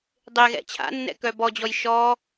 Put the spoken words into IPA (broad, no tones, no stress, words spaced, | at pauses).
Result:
dˤeɣɛ̰ t͡ɕʰa̰ nːɛ̰kœbɔd͡ʑɔj ʃɔ